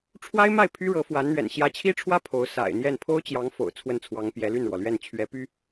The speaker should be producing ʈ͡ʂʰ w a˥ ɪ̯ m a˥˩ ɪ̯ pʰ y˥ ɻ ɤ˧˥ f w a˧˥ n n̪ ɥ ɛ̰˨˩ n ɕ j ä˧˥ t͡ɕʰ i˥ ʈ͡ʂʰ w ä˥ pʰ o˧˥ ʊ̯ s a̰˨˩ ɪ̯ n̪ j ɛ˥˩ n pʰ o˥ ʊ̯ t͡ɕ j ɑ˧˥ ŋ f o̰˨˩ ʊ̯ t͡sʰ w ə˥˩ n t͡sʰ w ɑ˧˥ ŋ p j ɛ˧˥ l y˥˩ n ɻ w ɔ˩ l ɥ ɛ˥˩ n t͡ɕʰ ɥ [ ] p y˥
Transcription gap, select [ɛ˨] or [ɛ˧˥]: ɛ˧˥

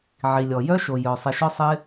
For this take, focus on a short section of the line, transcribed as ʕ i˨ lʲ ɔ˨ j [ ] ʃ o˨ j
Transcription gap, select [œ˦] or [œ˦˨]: œ˦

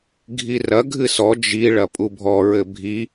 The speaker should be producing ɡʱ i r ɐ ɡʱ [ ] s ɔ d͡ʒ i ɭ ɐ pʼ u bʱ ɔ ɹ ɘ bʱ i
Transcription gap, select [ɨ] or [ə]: ɨ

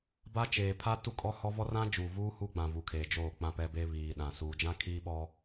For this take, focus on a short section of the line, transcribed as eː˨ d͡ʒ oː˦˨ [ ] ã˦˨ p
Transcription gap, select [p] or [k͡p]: k͡p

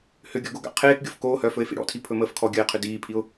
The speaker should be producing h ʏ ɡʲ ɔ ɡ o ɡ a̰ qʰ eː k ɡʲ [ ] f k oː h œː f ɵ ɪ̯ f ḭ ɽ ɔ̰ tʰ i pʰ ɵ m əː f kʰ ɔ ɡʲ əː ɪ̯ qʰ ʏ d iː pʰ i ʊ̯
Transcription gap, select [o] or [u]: o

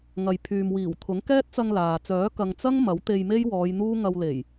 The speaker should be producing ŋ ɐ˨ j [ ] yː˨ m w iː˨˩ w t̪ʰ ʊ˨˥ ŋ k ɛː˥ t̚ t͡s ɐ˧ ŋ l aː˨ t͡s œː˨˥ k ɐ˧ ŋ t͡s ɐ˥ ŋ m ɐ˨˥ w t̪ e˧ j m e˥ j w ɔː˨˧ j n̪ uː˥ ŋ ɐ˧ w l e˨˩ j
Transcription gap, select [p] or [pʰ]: pʰ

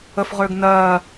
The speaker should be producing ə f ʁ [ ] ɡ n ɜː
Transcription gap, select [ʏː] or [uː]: ʏː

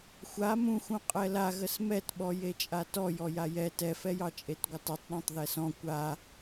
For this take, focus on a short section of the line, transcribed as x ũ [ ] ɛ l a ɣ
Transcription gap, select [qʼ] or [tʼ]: qʼ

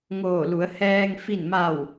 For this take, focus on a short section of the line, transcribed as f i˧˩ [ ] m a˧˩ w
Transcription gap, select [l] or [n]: n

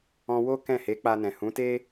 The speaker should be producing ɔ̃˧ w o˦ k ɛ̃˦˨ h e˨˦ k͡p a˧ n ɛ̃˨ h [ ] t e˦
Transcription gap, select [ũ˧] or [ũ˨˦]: ũ˨˦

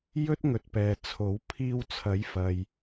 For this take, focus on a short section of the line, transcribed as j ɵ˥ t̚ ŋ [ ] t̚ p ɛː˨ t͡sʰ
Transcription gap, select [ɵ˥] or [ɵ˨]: ɵ˨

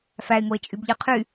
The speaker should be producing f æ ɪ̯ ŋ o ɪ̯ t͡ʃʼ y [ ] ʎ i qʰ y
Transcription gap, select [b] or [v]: b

